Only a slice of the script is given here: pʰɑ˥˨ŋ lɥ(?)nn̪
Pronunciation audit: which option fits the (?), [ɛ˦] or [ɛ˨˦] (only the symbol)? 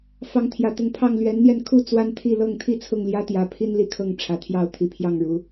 ɛ˨˦